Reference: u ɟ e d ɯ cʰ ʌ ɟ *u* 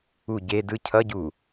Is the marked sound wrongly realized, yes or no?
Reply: no